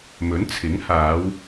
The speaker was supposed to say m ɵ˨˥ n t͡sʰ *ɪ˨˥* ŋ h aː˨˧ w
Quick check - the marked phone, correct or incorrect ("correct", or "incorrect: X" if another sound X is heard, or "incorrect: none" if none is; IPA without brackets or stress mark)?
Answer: correct